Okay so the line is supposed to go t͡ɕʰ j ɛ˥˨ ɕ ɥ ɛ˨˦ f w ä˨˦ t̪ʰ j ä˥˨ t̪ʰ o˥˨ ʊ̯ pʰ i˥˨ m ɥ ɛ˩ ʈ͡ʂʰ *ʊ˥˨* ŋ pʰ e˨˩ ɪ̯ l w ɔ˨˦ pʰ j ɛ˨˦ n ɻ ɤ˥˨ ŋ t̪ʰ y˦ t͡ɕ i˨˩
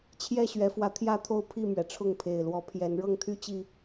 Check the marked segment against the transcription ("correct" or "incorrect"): correct